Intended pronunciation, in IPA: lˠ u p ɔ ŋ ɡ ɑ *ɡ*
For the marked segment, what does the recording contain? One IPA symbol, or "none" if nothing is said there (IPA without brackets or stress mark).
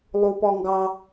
none